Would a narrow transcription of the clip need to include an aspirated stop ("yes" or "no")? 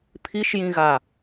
yes